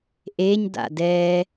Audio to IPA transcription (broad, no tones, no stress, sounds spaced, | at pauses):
ʔ e ɲ d a̰ d ɛː